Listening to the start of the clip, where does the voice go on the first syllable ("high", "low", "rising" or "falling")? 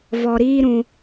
low